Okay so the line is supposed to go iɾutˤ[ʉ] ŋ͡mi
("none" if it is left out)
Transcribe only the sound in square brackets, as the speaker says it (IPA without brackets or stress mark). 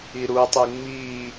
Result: ʉ